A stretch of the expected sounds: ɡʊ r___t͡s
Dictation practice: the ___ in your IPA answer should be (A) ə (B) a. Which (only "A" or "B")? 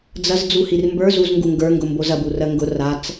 B